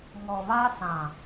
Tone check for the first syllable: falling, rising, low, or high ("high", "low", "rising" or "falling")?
low